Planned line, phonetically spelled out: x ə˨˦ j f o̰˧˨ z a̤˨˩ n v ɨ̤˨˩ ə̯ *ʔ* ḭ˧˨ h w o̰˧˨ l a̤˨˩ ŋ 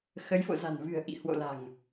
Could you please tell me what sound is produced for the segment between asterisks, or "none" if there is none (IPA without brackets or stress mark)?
ʔ